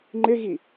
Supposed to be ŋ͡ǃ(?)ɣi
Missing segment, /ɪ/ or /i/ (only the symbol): ɪ